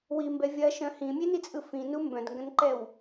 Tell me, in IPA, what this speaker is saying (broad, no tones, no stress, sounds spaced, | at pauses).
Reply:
w i m b ɛ vʲ ɐ ʃ œ̃ h ĩ mʲ e n i t͡sʼ ɯ f ĩ n u m b œ̃ d ŋ ɡ ɐ̃ n ǃ ɛ w